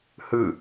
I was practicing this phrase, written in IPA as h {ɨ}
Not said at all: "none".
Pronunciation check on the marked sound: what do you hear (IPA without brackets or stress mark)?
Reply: ɨ